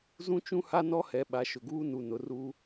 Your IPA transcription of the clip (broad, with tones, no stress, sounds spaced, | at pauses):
z ũ˦ t͡ʃ ũ˦ h a˦ n ɔ˦ h ɛ˨ ɓ a˨˦ ʃ ʊ˨ ɡ uː˦ n u˨ n ʊ˨ r u˦